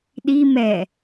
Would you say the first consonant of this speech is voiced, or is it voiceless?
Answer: voiced